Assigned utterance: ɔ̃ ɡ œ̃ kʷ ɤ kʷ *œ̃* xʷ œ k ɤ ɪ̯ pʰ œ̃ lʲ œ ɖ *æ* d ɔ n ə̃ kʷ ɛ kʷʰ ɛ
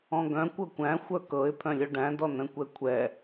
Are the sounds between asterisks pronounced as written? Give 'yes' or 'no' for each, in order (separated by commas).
no, no